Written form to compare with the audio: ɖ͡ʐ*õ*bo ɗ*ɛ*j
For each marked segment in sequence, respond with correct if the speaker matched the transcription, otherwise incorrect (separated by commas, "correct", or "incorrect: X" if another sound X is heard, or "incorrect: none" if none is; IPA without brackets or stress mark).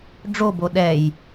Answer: incorrect: o, correct